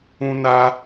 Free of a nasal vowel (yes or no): no